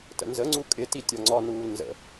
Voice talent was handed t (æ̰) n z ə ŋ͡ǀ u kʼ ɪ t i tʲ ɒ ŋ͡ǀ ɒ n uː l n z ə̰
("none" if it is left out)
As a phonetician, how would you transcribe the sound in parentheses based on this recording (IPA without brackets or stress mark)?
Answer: ə̰